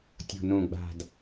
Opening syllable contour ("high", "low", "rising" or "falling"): low